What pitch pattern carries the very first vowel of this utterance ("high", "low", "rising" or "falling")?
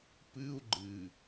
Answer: high